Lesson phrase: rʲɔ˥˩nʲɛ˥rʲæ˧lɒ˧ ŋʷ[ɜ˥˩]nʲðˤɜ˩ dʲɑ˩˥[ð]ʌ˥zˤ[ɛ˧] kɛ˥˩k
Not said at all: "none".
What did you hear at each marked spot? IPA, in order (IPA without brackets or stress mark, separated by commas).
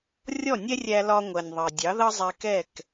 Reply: ɜ˩, ð, ɛ˧